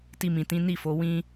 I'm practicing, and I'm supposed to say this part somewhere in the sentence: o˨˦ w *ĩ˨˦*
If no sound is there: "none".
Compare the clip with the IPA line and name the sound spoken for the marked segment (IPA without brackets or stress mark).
ĩ˦